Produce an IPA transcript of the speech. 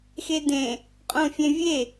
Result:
x e d ẽ | qʼ õ fʲ ẽ vʲ e

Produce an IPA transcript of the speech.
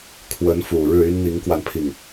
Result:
kʰ w ə˧˥ n f u˨˩ ɻ ɻ̩˥˩ y˥ n n̪ i˧˥ ŋ k w a˧ n pʰ i˥˩ ŋ

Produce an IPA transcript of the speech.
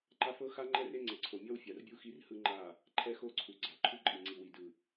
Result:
ǃ a˦ f ɤ˦ x a˦ ŋ͡ǃ ɛ˦ r e˦ ŋ͡ǀ ɛ˨ ǀʰ o˨ mʲ ɔ˦ w fʲ a˨ r bʲ u˦ x i˦ r h ɯ˦ ŋ͡ǃ a˦˨ | ǃʰ ɛ˦ x o˦˨ ǀʰ u˨ ɡ͡ǀ a˨ ǃʰ u˦ ǃʼ i˨ ŋ͡ǀ i˨ w i˨ d ɯ˨

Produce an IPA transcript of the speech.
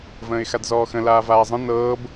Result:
v ə̃ː ɪ̯ x a d z ɔː x ə̃ l aː v aː zˤ ə̃ n ɤː b

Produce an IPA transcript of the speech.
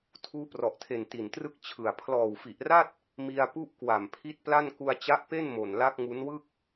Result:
tʰ uː˦˥ p r ɔ˨˩ ʔ tʰ e˨˩ n t i˨˩ n t r ɯ˥˩ k̚ t͡ɕʰ ɯ˨˩ a̯ pʰ l ɔː˨˩ w f i˨˩ ʔ r a˥˩ t̚ | m i˧ a̯ p u˥˩ ʔ k w a˨˩ m pʰ i˦˥ t̚ p l a˥˩ n k u˧ a̯ t͡ɕ a˦˥ ʔ p e˥˩ n m o˨˩ n l a˦˥ k̚ ŋ u˦˥ n w ɯ˥˩ k̚

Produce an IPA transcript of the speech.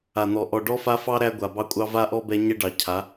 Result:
a˨ n̪ ɔ˨ ʔ ɔ˨ ɖ ɔ˦ f a˦ f ɑ˦ ɾ æ˦ ɡʷ a˨ b ɑ˦ kʷʼ ɑ˦ v a˦ ʔ ɔ˦ b ɛ˦ ɲ ɛ˦ ɖ ɑ˨ cʰ a˨˦

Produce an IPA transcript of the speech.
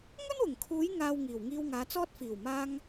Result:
ŋ ɵ˥ n w ʊ˨˩ ŋ kʰ uː˨˧ j ŋ aː˨ w ŋ iː˨˩ w ŋ iː˧ w ŋ aː˨˧ t͡s ɔː˥ t̚ f iː˨˩ w m aː˧ ŋ

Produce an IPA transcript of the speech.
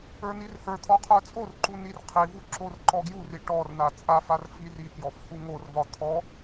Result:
ə˞ n i r h ə˞ t̪ʰ ɔ qʰ ə˞ t͡sʼ o r ǃ u n i r qʰ i v u ǁ o r ǃ ɔ ɡ j u r i ʈ ɔ r n a t͡sʼ a f a r f i r i k j ɔ f h u ŋ o r v ɒ t̪ʰ ɔ

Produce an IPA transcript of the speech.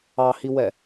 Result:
ɑ h i w ɛ

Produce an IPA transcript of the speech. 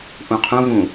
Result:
ʔ ũ qʰ ũ v ũ

